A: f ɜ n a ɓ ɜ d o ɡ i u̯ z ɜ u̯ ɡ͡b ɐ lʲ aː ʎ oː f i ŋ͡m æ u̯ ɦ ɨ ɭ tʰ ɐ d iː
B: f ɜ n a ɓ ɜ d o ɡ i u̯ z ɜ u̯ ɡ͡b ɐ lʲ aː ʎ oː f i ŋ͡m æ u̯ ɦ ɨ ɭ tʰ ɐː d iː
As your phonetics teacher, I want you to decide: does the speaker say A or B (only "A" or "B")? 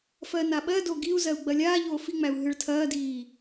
B